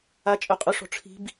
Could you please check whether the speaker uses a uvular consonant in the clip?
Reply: yes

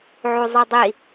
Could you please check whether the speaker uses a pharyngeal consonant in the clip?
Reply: yes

